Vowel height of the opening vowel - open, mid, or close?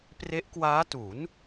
mid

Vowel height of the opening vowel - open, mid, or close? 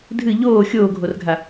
close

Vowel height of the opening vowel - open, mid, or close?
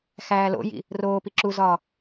open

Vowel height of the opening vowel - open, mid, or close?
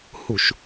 close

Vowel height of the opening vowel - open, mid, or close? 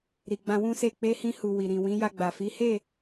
close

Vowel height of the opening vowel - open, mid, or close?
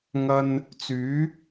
open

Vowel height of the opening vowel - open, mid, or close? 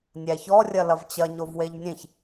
open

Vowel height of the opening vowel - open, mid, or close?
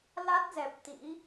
open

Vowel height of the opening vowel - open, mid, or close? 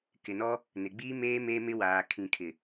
close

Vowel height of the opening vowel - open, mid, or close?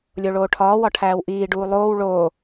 mid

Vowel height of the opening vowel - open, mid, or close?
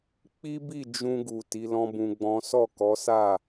close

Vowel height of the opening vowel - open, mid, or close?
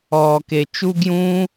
mid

